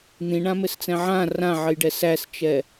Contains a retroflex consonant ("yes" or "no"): yes